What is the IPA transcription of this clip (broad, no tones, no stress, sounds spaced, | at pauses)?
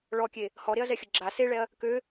ɭ ɔ kʲ e | h ɔ ɾ e ɐ̯ z ɛ xʲ ə ɡ͡ǁ a s e ɭ ɛ ɐ̯ | k ø